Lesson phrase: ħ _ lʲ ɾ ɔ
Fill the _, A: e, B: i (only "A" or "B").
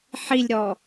B